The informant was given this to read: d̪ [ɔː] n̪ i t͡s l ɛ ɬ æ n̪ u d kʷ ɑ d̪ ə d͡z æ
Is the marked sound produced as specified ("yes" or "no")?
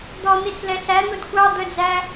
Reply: no